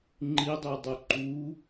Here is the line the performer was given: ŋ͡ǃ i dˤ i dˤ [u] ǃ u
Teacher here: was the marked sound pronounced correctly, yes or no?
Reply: no